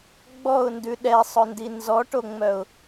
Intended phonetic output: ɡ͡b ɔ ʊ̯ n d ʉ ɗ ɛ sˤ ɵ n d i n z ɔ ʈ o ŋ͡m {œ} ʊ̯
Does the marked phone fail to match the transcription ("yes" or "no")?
no